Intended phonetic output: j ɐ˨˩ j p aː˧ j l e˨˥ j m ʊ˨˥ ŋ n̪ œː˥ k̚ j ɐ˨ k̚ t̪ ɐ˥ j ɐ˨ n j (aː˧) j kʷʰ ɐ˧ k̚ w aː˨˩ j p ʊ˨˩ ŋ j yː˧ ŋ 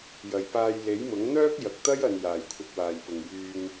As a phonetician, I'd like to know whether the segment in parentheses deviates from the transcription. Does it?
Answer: yes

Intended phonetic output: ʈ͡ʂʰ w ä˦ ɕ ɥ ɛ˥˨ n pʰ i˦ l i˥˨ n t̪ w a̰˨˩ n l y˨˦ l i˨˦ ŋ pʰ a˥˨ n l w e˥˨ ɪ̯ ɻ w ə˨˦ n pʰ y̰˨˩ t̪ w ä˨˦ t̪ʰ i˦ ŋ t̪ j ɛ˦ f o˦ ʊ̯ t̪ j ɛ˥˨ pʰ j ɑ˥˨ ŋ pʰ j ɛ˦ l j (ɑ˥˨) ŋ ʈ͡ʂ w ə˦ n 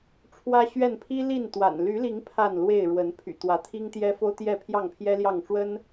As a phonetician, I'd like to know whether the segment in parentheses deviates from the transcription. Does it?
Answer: no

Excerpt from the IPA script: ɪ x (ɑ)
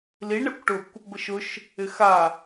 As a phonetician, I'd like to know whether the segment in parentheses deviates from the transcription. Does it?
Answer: yes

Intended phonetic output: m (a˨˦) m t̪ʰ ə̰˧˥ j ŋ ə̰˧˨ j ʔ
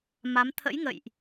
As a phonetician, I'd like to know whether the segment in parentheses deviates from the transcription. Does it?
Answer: no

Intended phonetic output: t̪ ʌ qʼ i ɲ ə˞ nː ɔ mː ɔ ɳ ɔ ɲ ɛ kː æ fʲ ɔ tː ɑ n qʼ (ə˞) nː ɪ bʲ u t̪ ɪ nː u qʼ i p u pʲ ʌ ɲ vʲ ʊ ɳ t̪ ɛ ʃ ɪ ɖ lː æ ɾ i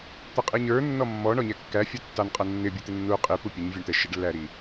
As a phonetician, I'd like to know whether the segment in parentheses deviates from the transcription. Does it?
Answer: yes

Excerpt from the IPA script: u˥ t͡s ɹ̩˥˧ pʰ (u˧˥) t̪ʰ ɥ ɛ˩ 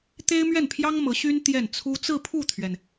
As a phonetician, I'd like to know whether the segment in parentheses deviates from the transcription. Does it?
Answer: yes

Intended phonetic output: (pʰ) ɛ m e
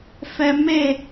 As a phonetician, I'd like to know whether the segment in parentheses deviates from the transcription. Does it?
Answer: yes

